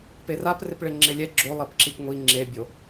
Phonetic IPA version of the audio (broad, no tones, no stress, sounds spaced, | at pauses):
p e r a p r ɪ p ɭ e ŋ͡ǁ ɪ lʲ ɛ ɡ͡ǁ o lˠ ɛ p ǁ i p ŋʷ i ŋ͡ǁ e bʲ o